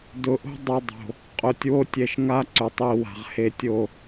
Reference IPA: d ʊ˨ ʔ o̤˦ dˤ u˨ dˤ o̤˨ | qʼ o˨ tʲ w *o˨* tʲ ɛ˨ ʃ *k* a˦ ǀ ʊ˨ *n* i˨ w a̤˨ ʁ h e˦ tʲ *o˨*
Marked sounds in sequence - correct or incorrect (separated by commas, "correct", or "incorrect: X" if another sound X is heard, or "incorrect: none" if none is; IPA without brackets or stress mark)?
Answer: incorrect: o˦, incorrect: ŋ, incorrect: tˤ, incorrect: o˦˨